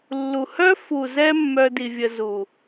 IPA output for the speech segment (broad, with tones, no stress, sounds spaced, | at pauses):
lː u˨ h œ˦ f u˨ z ɛ˧ mː œ˦ d i˧ vʲ ə˧ z u˨